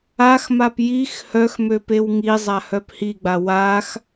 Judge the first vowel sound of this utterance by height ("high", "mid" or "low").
low